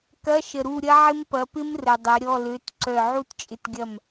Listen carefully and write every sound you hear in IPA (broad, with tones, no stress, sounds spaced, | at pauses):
k ɐ˧˥˧ ʃ ə˨ ɾ u˦˨ ɾʲ ɐ˦˥ ʕ ɪ˦˥ m p ɐ˨˦ p ɪ˦˥ m r ə˨ dˤ ɐ˨˦ ɾʲ ɔ˧˥˧ l ø˧˥˧ t ǀ œ˦˨ ʕ u˦˥ t t͡ʃʼ ɪ˦˨ t ɡʲ ɐ˦˨ m